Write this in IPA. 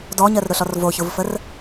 d ɔ ɲ ɜ r ɾ ʊ ɬ ɔ r v o ç ʊ v f ə r

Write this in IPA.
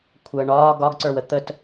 kʷʰ əː ɳ ɒː ɡ ɒ ɡ ǀ ə˞ w ə t̪ ə t

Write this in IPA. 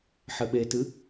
ħ ɘ ɓ e t ɨ

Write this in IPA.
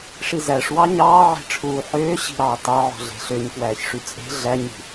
ʂ i z æ ʂ w ɑ ɲ ɑː ʕ e̤ ʈ͡ʂʰ uː ħ øː ɕ i̤ ɾ ɑː t ɑ ʕ o̤ ɮ e̤ ɬ ø ɲ k w æː ç ʂ y t͡sʼ e̤ ɮ æ ɲ i̤

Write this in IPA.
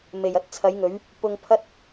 m e˨˩ j ɐ˥ t̚ t͡sʰ ɐ˨˥ j ŋ ɵ˨˥ ɥ | p ʊ˧ ŋ pʰ ɐ˥ t̚

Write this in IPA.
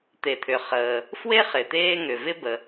t̪ e˨ t̪ʰ ʏ˨ χ əː˨ | f w e˥ χ ɪ˨ t̪ eː˥ ŋ ʏ˨ v ɪ˥ b ə˨

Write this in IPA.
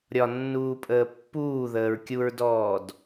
ɾʲ ɒ nː uː pʼ əː pː uː ð əː ɹ kʲ u ɹ d ɔː d

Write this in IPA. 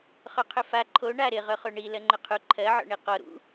χ ɵ qʰ ʏ f a ǃʰ o ɳ a ɾ ɪ ʁ ɵ χ o ɳ i l ɜ ŋ͡ǃ ʏ qʰ u ǃʰ ɜ ʕ ɔ̰ ɳ i q ɔ ɾ ṵ

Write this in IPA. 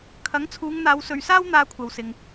kʰ ɐ˨˥ ŋ t͡sʰ uː˨˧ ŋ n̪ aː˨˧ w s ɵ˨ ɥ s aː˥ w n̪ aː˧ kʷʰ ɐ˨ w s ɪ˨ ŋ

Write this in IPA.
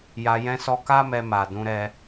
j a˧ j ɛ̃˧ s ɔ˧ k a˦ m ɛ˧ m a˨ d ũ˨˦ ɾ ɛ˧

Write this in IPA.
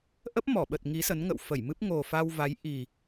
ʔ ə˦˥ p̚ m ɔ˧˩ ɓ ə˨˩ t̚ ŋ i˨˦ s ə˨˦ n ŋ ə̰˧˨ w f ə˧˩ j m ɨ˦˥ p̚ ŋ o˨˩ f a˧ w v a˨˦ j ʔ i˨˩

